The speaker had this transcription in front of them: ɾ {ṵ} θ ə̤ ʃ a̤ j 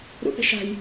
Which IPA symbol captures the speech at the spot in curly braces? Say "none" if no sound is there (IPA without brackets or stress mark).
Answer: ṵ